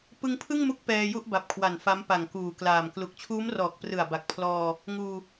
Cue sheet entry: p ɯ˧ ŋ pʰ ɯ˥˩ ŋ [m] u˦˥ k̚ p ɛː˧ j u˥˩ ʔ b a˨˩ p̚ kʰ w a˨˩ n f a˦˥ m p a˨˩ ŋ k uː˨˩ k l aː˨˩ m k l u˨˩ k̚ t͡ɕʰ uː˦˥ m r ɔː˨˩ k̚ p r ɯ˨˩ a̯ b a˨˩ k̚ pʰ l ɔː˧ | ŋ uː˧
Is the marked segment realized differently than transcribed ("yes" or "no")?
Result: no